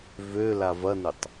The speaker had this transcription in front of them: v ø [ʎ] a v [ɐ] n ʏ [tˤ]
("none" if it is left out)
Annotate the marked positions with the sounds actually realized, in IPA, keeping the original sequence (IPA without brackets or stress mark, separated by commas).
l, ɐ, tˤ